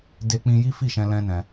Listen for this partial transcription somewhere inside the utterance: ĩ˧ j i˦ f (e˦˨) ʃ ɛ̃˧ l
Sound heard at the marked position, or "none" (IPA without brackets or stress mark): i˦˨